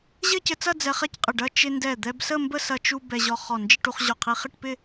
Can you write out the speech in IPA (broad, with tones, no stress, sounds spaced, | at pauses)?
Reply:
ʑ ɘ˥˧ c ɘ˧ t͡s ɐ˥˧ d͡z ɛ˧ χ ɛ˥˧ c qʼ ɪ˧˩ ɖ ɐ˥˧ t͡ʃ ɪ˧ n d ɛ˧˩ d̪ ɛ˧ b s ə˥˧ m b ə˥˧ s ɐ˧ t͡ʃ u˧ b ɛ˧ ʑ ɔ˧ χ ɔ˧˩ n d͡ʒ ɪ˥˧ ʈ u˧ χ ʑ ɔ˧˩ qʰ i˧ χ ɪ˥˧ ʈ p ɪ˥˧